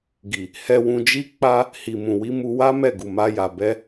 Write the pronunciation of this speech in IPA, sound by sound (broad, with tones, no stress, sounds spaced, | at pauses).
ɡ i˨ | h ɛ˧ w ũ˧ d͡ʒ i˦ k͡p a˧ | h i˨ m ũ˨ w i˧ m u˧ w a˦ m ɛ˦˨ ɡ u˨ m a˧ j a˨ b ɛ˧